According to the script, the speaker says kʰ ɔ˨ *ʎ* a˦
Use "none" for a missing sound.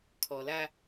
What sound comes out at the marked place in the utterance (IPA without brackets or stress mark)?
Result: l